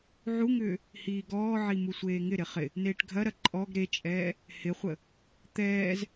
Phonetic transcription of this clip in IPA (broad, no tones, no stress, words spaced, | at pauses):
ʕuŋʏː | hiːɡɔːʕi musʷeːŋɪɾɪ χɪ | neːʈɡʱɐɾɐ ǃʼɔɡ ɾet͡ʃʼɛː | hɪχʷə | t̪ɛːz